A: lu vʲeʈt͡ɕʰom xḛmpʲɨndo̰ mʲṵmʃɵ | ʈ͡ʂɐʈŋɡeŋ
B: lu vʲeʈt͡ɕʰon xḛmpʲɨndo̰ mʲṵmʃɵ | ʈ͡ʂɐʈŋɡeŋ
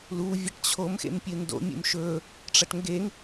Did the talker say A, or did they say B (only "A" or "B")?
A